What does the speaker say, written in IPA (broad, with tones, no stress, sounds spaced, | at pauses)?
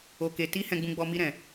o˨ k e˨ t i˧ h ɛ̃˨ ɡ͡b ũ˨ ɡ͡b ɔ˨ m i˧ ɾ ɛ̃˨